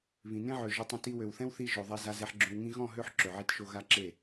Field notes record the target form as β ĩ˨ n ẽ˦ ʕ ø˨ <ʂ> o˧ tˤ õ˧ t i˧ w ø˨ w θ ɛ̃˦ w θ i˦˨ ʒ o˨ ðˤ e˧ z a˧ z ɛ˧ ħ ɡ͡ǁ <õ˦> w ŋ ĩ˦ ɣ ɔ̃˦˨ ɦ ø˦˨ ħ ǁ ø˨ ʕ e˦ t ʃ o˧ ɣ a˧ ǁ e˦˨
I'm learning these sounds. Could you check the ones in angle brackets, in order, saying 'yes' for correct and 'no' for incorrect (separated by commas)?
no, no